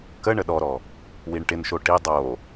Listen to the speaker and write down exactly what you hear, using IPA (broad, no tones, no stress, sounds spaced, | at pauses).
k ə ɳ ə ɗ ɔ ɾ ɔ | w i ɳ ʈ ɪ n ʃ o ʈ i dˤ o